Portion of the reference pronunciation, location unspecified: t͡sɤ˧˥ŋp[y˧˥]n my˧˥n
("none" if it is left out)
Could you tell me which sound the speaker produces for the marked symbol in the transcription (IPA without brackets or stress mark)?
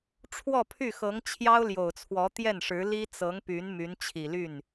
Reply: y˧˥